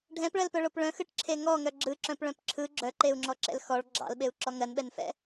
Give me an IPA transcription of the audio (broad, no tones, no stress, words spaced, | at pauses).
ɖʱɛ̃pɭɜlpœɭop ɭœ̃xɯʈǁʰe ŋɔŋœ ɡ͡ǁɯǁœ̃pɭœ̃p ǁʰɯ ɡ͡ǁœǃeu̯ŋ͡ǁɔǁɛ̰l xɔɭ ɡ͡ǁɑ̰lɓeu̯ǁɔ ŋɜnɓɛnfɛ̰